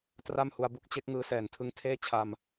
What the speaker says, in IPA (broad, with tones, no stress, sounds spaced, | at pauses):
t r a˥˩ m h u˧ a̯ b u˦˥ k̚ t͡ɕ e˦˥ k̚ ŋ ɯː˦˥ s ɛː˨˩ n tʰ ɯ˦˥ ŋ tʰ eː˥˩ t͡ɕʰ a˧ m